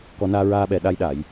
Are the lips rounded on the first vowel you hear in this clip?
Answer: yes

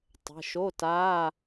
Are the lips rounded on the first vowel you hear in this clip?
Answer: no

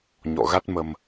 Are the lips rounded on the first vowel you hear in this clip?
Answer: yes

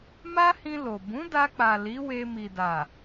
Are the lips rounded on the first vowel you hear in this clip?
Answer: no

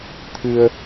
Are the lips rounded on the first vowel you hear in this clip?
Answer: no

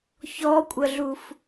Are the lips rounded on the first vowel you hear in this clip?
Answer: yes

